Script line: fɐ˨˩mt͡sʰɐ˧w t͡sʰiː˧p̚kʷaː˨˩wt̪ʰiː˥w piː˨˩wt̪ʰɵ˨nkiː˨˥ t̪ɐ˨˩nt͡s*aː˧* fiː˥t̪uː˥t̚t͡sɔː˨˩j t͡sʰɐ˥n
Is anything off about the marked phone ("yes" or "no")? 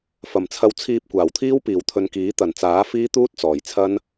yes